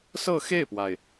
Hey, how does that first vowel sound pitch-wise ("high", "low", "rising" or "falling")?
falling